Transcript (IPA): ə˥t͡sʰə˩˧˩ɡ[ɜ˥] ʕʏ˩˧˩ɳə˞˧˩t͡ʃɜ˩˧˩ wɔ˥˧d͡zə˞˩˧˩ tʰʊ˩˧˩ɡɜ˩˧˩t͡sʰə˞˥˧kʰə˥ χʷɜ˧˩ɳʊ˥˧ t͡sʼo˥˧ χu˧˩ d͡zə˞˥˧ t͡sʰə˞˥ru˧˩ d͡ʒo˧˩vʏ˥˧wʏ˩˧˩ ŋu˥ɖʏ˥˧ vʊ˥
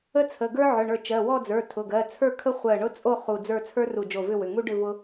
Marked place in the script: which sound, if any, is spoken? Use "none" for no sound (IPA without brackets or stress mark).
ə˞˥